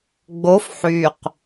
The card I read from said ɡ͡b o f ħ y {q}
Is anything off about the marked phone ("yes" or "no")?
no